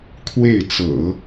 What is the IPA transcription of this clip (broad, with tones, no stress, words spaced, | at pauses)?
kʰwe˥˩ɪ̯t͡sɤ̰˨˩˦